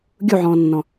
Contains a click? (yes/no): no